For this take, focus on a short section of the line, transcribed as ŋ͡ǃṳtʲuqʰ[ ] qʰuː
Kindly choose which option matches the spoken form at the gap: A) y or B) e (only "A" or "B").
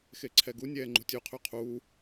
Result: A